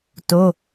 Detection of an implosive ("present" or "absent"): absent